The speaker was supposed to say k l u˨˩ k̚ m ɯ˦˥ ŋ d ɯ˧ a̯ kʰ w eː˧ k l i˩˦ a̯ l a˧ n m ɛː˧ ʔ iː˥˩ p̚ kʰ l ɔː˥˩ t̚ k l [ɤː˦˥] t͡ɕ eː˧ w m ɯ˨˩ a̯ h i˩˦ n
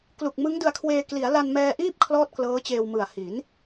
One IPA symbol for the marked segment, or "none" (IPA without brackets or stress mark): ɤː˦˥